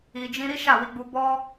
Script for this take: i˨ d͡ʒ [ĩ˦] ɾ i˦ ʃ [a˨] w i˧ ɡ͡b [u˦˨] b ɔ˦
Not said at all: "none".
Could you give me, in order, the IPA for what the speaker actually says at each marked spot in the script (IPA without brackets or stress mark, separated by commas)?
ĩ˧, a˦˨, u˧